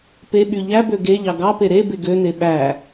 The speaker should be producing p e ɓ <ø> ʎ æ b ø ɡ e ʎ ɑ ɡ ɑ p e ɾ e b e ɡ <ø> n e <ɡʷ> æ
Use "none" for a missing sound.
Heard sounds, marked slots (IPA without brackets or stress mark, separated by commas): y, ø, ɓ